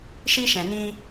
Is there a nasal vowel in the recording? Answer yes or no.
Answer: yes